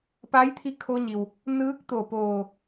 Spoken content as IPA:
p a˧˥ j t̪ʰ i˧ kʰ o˧ ɲ i˩ w | n ɯː˧˥ k̚ t̪ o˧˩ p oː˧˩

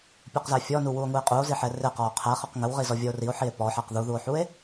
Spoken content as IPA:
pʲ u q z æ fʲ ɔ n u w u o̯ ŋ u e̯ qʼ u o̯ z i ħ ɛ r ɪ q ɔ o̯ qʰ æ χ ə q ŋ ə w ʁ i z ɔ vʲ ʌ o̯ r i o̯ ħ i e̯ p ɔ ħ æ q ð u ð u o̯ ħ u e̯

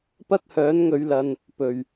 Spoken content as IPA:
p ɐ˥ t̚ h œː˨˥ n ŋ ɵ˨˧ ɥ l ɐ˨ n | p ɵ˨˩ ɥ

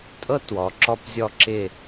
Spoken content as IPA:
tʼ ɤ˥ t w ɔ˩˧ ǁ ɔ˧˩ p zʲ ɔ˧˩ ǁ ɪ˧˩

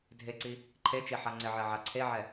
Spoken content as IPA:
dʱ e ǀ i | ǃʰ e t͡ʃ e ħ a ŋ͡ǀ ɪ ʕ ɛ ʕ a ǀʰ e ʕ ɛ

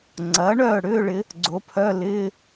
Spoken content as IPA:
ŋ͡ǀ ɐː˩˥ ɳ œː˥˩ ɽ ʏː˧˥˧ ɭ ɪ˩˥ | ɡ͡ǀ o˩˥ pʰ œ˧˥˧ l ɪː˧˥˧

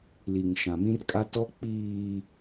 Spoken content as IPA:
l i˨ ŋ ʃ ã˨ m ĩ˦ r kʼ a˦ t ɔ˦ k͡p iː˨

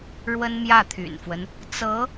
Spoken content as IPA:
ɻ w ə˥ n m j ä˥˩ t̪ʰ y̰˨˩ n f w ə˦ n | t͡s ɤ˧˥

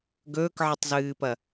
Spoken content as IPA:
ɡ ɵː k ʕ ɨ tˤ z ɨː p ɐ

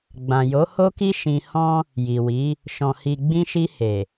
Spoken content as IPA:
ɡ͡b ã˨ j o˨˦ h o˦ k i˦ ʃ ĩ˧ h ɔ̃˦ | j i˨ w i˨˦ | ʃ ɔ̃˨ h i˨ ɡ͡b ĩ˧ ʃ i˧ h e˨

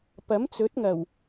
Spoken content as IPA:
p ɐ˨˥ m t͡s ɵ˨˥ t̚ ŋ ɐ˨˩ w

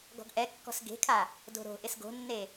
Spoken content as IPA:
ɡ ɔ̤ ɡ ʔ ɛ kː ɔ̤ s ɡ e̤ kʰ a | d o̤ ɾ o̤ ʔ ɪ s ɡ o̤ nː e

